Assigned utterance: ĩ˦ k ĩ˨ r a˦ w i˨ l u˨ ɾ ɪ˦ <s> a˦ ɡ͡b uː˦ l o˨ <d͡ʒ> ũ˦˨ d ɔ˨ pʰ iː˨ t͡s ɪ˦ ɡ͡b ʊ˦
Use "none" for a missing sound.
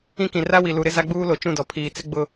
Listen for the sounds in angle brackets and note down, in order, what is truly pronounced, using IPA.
z, t͡ʃ

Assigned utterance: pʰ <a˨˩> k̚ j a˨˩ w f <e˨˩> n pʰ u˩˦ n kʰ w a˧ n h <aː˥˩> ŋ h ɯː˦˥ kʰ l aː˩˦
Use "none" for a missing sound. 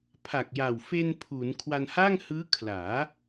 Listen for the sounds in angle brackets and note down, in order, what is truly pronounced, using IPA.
a˨˩, e˧, aː˥˩

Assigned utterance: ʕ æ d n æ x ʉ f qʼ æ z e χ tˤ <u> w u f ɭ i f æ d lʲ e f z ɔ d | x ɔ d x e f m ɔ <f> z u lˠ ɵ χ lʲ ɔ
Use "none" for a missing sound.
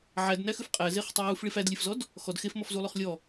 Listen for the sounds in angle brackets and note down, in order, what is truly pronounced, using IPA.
u, f

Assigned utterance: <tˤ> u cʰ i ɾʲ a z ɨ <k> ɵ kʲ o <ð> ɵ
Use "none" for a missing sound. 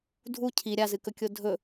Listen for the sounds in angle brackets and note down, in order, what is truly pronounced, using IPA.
dʱ, k, dʱ

